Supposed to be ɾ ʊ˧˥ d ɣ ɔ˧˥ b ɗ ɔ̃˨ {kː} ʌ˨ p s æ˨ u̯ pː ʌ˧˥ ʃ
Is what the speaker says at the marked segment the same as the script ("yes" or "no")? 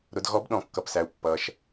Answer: yes